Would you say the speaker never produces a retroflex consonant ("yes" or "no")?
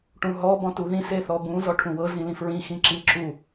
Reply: no